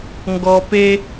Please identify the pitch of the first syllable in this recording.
low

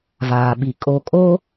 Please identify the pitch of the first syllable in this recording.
low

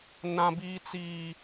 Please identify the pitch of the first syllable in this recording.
high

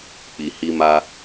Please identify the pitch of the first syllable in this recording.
low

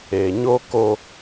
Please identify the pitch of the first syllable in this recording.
low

